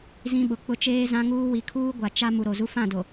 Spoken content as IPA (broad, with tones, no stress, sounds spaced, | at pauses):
z ĩ˦ ɓ ʊ˨ k͡p ʊ˦ t͡ʃ eː˦ z ã˦ ŋ uː˦ w i˨ kʰ uː˦ ɡʷ a˨ t͡ʃ a˦ m u˨ ɾ o˨ z u˦ f ã˦˨ d o˨